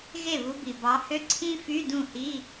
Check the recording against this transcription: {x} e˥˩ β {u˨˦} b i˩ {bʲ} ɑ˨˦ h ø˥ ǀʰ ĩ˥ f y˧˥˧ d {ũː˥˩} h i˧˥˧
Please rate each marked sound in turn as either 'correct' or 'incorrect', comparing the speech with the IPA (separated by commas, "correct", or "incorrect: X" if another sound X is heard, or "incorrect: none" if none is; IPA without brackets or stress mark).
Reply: incorrect: ɣ, correct, incorrect: b, incorrect: ũ˥˩